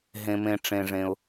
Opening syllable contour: low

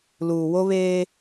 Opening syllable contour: low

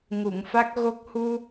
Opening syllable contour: low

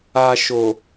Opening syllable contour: low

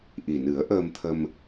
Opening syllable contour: low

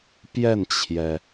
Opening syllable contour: falling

